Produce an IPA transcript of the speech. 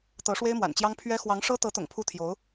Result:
t̪ɤ˧˥ʂwe˥ɪ̯mwa̰˨˩nt͡ɕjɑ˥ŋ pʰɥɛ˥ xwɑ˧˥ŋʂɤ˥t̪ɤ˧˥t̪ʊ̰˨˩ŋ pʰu˥t̪ʰjo˧˥ʊ̯

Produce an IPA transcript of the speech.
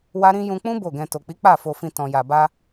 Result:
wa˦ɾĩ˦ jũ˧k͡pũ˦ bo˦˨ɡɛ̃˧ to˨k͡pi˨˦ k͡pa˦˨ fo˧fĩ˧ tɔ̃˨ja˨ba˧

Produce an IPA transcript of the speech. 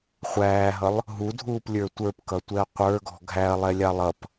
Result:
χʷæːɦʌlˠ | ɦudʱuːplʲə˞ tʷə˞pkʌtʷɛɐ̯ qʷə˞ɡɔ̤ ɡʱæɐ̯lˠɛlʲɑ lˠʌp

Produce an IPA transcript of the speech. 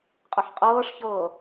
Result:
qʼɐħqʼɤːʂçɤː

